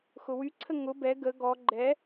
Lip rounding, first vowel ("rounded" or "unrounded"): rounded